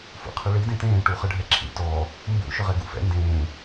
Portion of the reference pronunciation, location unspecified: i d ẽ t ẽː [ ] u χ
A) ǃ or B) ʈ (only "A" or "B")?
B